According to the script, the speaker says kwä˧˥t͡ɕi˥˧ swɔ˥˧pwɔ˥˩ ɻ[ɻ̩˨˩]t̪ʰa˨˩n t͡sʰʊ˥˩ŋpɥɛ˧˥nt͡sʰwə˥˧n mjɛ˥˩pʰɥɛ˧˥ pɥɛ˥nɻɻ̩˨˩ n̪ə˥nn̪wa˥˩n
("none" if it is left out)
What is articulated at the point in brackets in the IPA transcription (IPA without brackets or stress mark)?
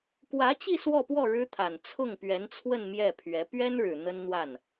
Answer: ɻ̩˥